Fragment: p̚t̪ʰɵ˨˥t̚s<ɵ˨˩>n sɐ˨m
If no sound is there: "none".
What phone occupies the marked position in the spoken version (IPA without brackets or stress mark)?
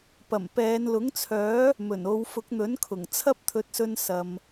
ɵ˧